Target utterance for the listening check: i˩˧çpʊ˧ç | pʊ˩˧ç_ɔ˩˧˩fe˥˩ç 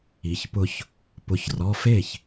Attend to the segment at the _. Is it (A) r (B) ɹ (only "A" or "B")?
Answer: A